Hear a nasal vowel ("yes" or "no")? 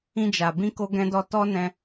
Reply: yes